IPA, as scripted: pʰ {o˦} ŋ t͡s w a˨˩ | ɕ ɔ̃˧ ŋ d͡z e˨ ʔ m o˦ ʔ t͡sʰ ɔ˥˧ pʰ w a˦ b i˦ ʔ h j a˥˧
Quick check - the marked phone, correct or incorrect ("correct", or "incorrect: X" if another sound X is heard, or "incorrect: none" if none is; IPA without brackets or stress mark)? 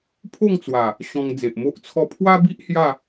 incorrect: o˥˧